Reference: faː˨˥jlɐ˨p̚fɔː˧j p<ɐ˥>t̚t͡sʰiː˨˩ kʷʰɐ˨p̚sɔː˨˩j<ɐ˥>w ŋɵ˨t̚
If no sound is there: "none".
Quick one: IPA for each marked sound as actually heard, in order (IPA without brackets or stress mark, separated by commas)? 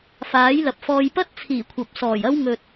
ɐ˥, ɐ˥